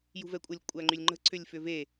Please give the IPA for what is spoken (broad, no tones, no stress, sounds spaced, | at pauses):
j ṳ v ɛ kʷʼ ə lʲ kʷʼ æ ŋ͡ǃ y lʲ ŋ͡ǃ ə̤ ǀ ʏ lʲ f ʏ v e